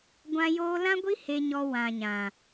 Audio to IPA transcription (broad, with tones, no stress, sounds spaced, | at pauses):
ɡʷ ã˦ j oː˦ l ã˦ ɡʷ i˦ h e˦ ɲ ɔ˦ w ã˧ ɲ ã˨